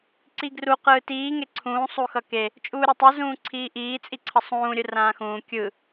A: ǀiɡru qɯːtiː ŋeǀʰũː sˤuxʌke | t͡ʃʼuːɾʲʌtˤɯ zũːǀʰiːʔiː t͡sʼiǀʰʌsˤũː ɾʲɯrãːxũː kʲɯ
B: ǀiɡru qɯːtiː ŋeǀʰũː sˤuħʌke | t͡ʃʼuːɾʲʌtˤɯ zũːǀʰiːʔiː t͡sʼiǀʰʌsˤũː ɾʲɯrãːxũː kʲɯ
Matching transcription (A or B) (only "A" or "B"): A